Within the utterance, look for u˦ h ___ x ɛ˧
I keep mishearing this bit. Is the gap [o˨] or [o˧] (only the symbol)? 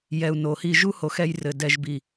o˨